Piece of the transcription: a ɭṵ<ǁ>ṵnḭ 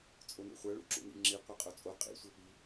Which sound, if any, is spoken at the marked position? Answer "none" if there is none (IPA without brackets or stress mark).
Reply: ǁ